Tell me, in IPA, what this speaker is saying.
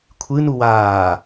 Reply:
kʷʰ ɨ n u w aː

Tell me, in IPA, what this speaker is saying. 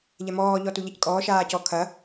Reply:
ʎ ɛ m ɔː ʎ ɔ t u ʎ ɘ c kʼ ɔː ʃ aː c ɔ kʰ ɐ

